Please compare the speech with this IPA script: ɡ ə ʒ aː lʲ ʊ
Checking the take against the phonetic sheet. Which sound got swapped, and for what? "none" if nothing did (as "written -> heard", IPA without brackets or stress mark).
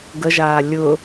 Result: none